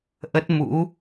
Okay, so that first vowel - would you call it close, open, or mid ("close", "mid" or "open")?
mid